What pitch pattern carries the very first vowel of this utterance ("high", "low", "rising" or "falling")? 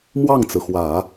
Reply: falling